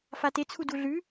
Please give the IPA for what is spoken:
fatet͡sʰu duɮʉ

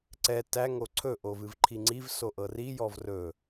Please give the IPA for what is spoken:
ǀɛ tæ ŋoǀʰɵ ʔovɨvǃʰiŋ͡ǀiv soʔɤri jɔvrɵ

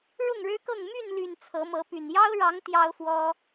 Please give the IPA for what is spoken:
ɻʊ˥˨ŋɻɻ̩˦kɤ˥˨ŋ my˥˨nly˨˩n t͡sʰɤ˨˦mɤ˨˦py˨˩n jɑ˦ʊ̯ɻɑ˨˦ŋ t̪jɑ˦ʊ̯fwɔ˦

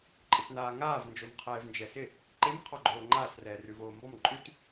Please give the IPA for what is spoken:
ǃʼɪtnaːŋaːv nd͡ʒomqʰɛːvnd͡ʒɛsɪ | ǃɪm qʰɔɡ͡ǃoːŋ͡ǃaːs rɛːrʉvoːmbɔm ǃʼʉt

